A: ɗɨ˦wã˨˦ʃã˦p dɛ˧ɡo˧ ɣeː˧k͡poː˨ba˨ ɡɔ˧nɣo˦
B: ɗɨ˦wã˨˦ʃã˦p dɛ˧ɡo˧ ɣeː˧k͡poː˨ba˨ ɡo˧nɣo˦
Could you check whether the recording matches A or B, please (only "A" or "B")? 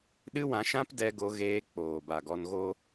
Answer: A